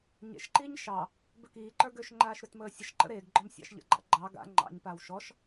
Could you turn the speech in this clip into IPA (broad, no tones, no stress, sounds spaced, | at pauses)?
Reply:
ɲ ḛ ʃ ǃ iː ɲ ʃ ɑ | b ø k iː ǃ ə˞ ɡ ø ʃ ŋ͡ǃ aː ʃ ɾ ø t m əː sʲ ə ʃ ǃ ə̰ ɾ eː ɡ ɡ͡ǃ ɔ m sʲ ɑ̰ ʃ ʎ ə̰ ɡ͡ǃ ɑ̰ ɡ͡ǃ ɑ ɡ a̰ ŋ͡ǃ ɑ̰ ɲ p aː w ʃ ɔ ʃ